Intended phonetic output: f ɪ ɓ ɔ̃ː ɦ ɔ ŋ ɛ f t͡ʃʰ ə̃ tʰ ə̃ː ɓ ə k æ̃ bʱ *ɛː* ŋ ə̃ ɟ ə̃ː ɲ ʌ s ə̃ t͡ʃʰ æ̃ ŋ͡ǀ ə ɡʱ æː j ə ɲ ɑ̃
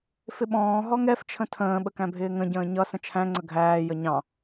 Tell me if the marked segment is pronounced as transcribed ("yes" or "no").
no